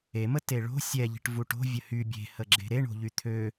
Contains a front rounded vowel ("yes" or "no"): yes